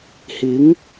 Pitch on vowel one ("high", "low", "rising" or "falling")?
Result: rising